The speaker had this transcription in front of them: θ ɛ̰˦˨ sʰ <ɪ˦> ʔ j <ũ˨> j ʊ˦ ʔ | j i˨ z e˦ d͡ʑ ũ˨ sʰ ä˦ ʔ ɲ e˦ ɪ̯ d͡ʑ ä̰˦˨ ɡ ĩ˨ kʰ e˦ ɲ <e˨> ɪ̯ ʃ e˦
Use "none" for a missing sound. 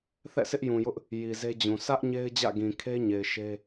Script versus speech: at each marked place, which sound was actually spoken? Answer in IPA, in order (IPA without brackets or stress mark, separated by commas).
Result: ɪ˦, ũ˨, e˨